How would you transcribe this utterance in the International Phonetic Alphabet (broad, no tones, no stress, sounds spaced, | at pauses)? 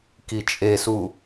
k i t͡ʃʼ e s u